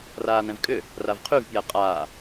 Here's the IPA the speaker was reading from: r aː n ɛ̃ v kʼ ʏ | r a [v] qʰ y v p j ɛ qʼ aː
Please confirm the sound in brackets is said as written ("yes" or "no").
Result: yes